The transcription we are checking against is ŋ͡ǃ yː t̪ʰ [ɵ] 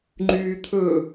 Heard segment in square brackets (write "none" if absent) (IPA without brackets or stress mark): ɵ